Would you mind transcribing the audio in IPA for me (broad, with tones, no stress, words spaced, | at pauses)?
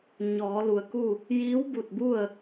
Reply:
ɲɔː˩˧lu˩ə̯ku˥˨ | jiː˧˥wbu˧˩t̚bu˥˨ə̯